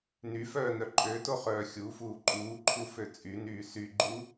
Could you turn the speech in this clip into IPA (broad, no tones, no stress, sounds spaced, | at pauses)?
n y f œː n œ ǃʼ ø t o χ œː xʲ u f uː ǃʼ uː ǃʰ u f ø t͡sʼ y n yː s y ɡ͡ǃ u